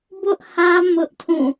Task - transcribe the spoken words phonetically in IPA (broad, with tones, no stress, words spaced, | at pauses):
bʊ˦ʔhä˦ mʊ˦ʔtʰũ˦˨